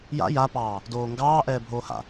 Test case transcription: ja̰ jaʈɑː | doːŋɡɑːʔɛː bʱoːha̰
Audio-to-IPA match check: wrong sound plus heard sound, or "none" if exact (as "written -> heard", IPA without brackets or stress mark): ʈ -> p